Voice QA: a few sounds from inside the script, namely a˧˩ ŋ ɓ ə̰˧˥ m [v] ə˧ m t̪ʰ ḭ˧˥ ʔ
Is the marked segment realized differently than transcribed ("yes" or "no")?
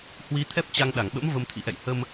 no